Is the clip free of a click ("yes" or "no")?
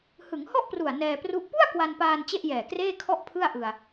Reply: yes